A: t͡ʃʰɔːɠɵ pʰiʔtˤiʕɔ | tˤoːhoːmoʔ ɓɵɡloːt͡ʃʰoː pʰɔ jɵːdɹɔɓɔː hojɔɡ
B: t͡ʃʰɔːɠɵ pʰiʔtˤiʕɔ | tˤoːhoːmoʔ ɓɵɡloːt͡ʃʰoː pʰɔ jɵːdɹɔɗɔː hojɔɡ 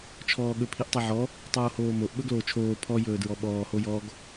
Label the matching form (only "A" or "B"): A